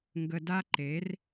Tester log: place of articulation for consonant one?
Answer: velar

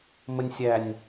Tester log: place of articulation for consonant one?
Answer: labial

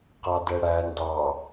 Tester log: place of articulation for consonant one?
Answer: uvular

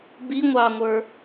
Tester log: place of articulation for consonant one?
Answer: labial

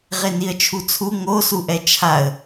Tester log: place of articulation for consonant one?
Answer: uvular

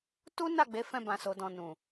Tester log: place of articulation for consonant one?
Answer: alveolar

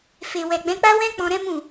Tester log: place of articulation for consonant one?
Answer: labial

